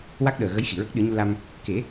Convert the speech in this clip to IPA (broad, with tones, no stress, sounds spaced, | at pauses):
w a˦˥ k̚ ɗ əː˨˩ ɣ ə˧˥ j x i˨˩˨ ɹ ə˦˥ k̚ ɗ ɨ˨˩˦ ɲ u˧ l a˧ m | k e˨˩˦